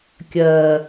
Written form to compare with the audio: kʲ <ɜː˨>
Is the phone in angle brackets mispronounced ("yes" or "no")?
no